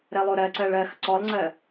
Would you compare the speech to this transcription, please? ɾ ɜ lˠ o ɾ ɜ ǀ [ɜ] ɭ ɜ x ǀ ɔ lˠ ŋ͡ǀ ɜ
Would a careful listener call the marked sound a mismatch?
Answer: no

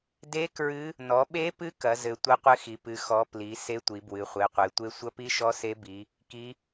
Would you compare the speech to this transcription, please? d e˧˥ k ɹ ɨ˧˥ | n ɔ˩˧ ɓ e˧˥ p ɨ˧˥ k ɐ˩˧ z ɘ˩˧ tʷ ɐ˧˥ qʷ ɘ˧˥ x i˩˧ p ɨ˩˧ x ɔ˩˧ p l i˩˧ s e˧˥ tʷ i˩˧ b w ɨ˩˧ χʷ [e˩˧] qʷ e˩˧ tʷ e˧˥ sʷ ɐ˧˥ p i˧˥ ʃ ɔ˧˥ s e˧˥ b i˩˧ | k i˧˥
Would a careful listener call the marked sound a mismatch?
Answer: no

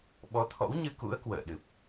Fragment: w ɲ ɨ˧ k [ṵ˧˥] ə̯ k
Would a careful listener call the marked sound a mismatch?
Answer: no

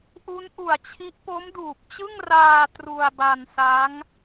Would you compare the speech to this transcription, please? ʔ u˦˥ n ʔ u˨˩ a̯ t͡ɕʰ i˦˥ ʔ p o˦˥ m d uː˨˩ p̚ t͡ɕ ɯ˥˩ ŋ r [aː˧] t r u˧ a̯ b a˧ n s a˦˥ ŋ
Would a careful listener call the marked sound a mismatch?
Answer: no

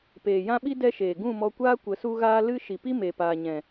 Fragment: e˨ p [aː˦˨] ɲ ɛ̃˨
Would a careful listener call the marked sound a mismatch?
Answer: yes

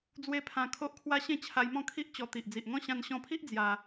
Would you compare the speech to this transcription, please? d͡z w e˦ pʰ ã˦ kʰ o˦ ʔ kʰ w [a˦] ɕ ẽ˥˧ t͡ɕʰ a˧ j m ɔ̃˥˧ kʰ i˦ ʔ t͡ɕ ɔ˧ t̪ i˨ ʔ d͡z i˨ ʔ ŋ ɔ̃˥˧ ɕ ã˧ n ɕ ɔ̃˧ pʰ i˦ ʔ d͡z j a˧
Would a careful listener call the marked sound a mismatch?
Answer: no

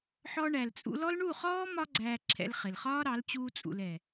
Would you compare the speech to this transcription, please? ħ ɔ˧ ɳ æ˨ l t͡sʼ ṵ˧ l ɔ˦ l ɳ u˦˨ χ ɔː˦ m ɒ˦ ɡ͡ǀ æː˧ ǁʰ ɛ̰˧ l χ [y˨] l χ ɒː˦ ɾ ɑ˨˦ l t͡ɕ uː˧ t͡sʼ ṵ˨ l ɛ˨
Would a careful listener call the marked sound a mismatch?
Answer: yes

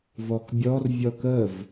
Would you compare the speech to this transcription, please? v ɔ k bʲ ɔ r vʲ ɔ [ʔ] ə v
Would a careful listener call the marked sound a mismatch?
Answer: yes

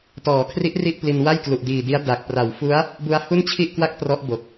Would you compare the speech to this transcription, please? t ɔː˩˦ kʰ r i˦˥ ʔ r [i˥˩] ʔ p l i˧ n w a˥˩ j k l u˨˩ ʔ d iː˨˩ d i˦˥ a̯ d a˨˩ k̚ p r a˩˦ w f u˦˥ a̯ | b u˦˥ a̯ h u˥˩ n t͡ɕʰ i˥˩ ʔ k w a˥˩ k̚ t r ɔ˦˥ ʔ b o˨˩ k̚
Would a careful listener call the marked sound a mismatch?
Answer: no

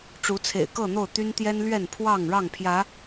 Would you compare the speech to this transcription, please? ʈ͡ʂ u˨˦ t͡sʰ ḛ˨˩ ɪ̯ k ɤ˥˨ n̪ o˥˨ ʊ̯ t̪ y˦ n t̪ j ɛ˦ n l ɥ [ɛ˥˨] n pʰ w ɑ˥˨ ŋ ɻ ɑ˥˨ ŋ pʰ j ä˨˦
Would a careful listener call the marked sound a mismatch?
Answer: no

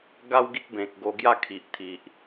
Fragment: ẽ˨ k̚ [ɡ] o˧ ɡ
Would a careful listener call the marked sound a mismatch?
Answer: no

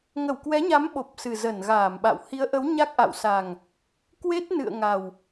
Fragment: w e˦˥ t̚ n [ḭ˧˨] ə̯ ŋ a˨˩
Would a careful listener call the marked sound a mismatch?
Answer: yes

